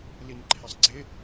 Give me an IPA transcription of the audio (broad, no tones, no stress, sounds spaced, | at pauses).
l i n ǃʰ ɪ sˤ ɡ͡ǀ ɪ